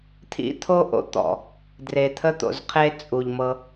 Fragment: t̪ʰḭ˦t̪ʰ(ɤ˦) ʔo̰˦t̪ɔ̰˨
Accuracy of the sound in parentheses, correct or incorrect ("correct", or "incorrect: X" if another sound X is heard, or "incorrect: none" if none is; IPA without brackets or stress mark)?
incorrect: o˦